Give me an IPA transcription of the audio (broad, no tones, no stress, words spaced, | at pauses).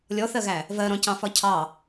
lʲɔθɜɣæ | vɜɾɔ̃cɑ̃fɒ cʰɑ